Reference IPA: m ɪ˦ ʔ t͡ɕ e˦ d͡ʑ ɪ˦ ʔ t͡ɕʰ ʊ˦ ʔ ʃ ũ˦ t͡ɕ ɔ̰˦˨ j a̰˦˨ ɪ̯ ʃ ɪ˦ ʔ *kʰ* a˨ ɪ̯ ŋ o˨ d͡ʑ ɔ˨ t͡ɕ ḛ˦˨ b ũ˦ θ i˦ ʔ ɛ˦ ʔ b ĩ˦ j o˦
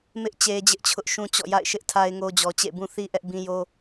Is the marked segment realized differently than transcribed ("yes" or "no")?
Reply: yes